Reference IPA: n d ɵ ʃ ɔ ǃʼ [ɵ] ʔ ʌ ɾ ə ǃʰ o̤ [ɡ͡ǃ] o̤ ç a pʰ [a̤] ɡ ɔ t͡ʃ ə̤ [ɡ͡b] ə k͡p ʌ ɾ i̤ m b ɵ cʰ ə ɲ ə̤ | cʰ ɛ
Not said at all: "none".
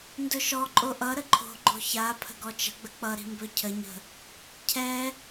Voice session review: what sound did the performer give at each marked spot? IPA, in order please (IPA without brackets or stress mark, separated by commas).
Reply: o, ɡ͡ǃ, ə̤, ɡ͡b